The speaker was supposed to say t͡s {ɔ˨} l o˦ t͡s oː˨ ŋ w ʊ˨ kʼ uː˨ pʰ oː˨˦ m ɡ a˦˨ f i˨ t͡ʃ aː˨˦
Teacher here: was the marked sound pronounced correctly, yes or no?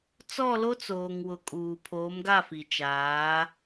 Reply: no